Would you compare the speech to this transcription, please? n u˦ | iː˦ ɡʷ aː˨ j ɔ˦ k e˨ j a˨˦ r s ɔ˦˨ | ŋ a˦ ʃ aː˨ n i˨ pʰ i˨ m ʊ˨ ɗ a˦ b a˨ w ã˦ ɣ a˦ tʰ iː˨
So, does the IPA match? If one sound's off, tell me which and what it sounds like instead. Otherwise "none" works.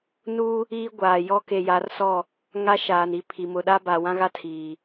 none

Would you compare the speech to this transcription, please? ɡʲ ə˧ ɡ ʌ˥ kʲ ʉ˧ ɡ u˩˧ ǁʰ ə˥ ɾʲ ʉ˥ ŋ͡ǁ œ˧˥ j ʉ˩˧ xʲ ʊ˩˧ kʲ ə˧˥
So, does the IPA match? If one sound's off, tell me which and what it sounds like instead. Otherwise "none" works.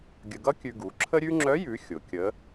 none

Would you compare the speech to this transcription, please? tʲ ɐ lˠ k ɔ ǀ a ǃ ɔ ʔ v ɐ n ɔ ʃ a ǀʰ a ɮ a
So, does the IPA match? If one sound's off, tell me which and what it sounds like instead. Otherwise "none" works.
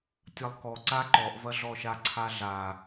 n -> ɮ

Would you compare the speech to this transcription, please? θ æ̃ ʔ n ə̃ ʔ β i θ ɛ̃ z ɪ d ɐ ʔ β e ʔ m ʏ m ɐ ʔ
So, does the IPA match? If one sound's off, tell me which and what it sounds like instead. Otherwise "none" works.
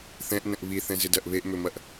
æ̃ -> ɛ̃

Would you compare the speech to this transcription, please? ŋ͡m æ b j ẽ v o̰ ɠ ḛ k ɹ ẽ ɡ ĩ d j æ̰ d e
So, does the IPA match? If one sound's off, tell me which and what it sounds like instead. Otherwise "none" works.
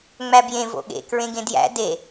ĩ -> ẽ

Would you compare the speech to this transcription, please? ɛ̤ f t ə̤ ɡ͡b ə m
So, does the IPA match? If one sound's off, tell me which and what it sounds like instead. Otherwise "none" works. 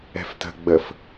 m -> f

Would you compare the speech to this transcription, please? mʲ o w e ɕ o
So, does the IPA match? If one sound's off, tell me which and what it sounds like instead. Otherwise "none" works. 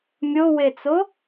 ɕ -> t͡s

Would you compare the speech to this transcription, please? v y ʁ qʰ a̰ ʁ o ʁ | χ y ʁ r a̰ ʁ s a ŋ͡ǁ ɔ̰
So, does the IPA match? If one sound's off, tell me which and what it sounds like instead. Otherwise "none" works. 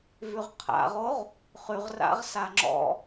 none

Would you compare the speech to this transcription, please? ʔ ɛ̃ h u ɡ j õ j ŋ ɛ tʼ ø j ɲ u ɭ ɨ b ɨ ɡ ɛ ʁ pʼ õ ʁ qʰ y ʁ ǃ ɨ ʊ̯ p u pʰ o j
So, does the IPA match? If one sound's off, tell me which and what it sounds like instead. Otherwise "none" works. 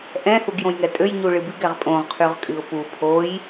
ǃ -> kʼ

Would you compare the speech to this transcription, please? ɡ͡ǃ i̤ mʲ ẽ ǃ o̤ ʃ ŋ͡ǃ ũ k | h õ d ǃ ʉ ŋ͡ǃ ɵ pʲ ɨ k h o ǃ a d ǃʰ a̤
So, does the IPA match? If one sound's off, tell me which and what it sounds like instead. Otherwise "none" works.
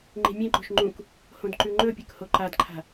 ɡ͡ǃ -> ŋ͡ǃ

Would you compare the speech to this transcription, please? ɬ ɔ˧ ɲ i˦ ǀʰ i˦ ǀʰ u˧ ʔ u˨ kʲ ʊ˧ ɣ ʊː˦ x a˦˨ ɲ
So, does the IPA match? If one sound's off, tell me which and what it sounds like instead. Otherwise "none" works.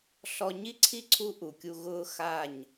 ʊ˧ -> u˧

